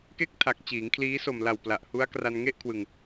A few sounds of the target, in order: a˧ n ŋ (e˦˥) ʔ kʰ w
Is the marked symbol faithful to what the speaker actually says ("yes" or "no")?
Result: no